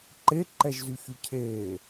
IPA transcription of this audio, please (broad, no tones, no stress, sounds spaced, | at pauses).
ǃ e ǃ ɛ ʒ z y ç y cʰ eː